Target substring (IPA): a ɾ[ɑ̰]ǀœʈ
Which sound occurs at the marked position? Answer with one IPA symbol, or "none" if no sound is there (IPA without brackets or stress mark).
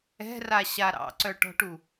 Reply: ɑ̰